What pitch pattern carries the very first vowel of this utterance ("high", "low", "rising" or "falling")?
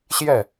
falling